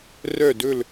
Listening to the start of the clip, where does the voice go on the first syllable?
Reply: falling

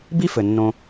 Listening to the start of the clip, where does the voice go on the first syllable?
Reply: high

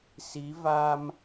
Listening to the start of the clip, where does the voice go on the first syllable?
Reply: rising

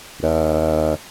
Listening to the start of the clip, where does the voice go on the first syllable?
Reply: high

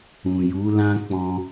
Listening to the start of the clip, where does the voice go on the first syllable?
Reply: low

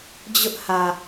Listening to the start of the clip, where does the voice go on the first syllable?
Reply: high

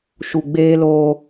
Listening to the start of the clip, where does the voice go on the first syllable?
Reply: low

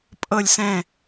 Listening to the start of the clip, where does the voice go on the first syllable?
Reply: falling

